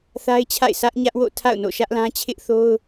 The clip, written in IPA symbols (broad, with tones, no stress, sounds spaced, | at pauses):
θ a˦ ɪ̯ t͡ɕʰ a̰˦˨ ɪ̯ s ä˦ ʔ ɲ ä˦ ʔ w o̰˦˨ tʰ a̰˦˨ ʊ̯ n o̰˦˨ ʃ ä˦ ʔ l ã˦ t͡ɕʰ ɪ˦ ʔ θ o˦ ʊ̯